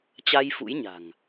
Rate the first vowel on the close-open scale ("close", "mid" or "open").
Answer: open